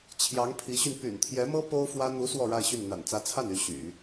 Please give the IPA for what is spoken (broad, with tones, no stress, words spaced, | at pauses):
t͡ɕʰjɑ˧˥ŋpʰi˧˥ɕy˧n py̰˨˩nt̪ʰjɛ˧˥mɤ˥ po˥ʊ̯fwä˥ n̪u˧˥ swɔ˥˧ɻa˥˧ɪ̯ɕy˥˩n n̪a̰˨˩nt͡sä˧˥t͡sʰa˥˩ny˧˥ ɕy̰˨˩˦